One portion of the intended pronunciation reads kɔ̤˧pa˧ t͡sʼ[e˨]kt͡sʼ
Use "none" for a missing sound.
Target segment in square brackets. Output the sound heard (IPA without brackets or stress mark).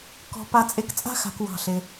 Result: e˨